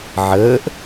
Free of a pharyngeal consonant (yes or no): no